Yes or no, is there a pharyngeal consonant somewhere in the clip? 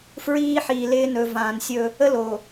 yes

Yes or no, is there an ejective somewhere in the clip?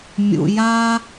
no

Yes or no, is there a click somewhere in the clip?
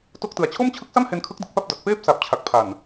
no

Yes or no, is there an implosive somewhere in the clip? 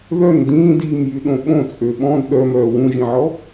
yes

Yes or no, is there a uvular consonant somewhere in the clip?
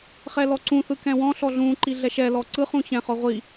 yes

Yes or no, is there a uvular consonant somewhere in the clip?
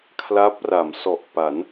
no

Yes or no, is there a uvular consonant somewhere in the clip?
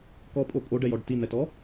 no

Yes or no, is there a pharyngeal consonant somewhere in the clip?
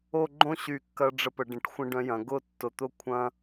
no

